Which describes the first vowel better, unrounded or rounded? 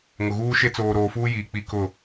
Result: rounded